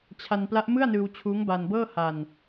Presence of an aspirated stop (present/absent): present